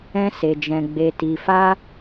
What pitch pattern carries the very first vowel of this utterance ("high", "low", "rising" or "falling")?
high